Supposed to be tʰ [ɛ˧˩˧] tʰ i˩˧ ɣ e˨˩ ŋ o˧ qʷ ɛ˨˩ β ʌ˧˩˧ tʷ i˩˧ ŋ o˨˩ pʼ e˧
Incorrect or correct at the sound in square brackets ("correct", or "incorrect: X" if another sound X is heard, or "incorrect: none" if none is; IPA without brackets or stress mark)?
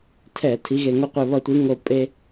correct